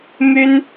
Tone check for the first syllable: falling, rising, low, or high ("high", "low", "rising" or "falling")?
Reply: high